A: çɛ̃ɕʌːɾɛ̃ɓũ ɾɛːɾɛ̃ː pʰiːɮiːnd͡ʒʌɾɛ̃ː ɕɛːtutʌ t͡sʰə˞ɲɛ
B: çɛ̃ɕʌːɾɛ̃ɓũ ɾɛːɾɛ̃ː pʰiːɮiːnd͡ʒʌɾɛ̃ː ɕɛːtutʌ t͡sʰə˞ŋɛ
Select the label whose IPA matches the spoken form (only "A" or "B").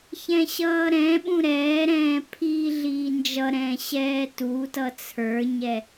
A